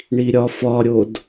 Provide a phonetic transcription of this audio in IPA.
ɳiɾʲɒfɒɾʲod

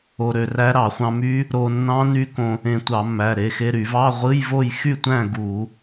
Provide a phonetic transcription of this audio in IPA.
o˧ɾø˧ræ˦˥ ɾɑ˧˩˧χʷɑ̃˧my˦˥ | ɾo˧nːɑ̃˦˥ ny˦˥kõ˧ | ẽ˧tʷɑ˧˩˧mːæ˩˧˩ ɾe˩˧˩xe˧ɾy˧˩˧ vɑ˧˥˧ʁʷɯ˧˥˧jvo˥˨j xy˥˨tʷæ̃˥˨ ɡu˧˩˧

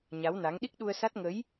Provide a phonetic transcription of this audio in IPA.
ɲa˨˦wna˨˦ŋ ɗi˦˥k̚ɗu˧ə̯sa˦˥t̚ ŋə˨˦j

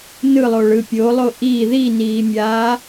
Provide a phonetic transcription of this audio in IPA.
nɯlˠoɭɯ pʲolˠo ʔi ðiniːmʲaː

